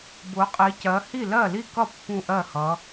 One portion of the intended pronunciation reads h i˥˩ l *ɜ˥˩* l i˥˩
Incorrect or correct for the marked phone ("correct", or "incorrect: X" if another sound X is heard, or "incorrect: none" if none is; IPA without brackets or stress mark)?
correct